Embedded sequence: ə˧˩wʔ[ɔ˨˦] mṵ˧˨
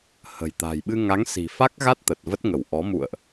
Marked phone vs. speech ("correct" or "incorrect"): correct